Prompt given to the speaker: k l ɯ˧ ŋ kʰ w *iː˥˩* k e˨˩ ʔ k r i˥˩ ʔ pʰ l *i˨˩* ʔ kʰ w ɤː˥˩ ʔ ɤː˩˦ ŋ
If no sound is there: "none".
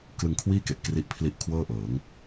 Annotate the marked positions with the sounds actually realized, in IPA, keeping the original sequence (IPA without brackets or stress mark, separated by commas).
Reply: iː˥˩, i˥˩